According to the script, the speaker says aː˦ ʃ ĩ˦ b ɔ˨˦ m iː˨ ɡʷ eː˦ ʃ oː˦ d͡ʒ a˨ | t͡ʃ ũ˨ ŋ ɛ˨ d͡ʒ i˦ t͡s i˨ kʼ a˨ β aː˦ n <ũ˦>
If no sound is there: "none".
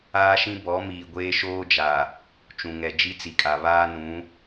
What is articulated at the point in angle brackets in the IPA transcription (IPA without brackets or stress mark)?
ũ˨˦